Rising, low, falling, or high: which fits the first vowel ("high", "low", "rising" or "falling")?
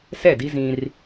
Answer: falling